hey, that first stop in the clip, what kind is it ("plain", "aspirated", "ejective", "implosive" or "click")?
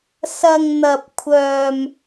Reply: plain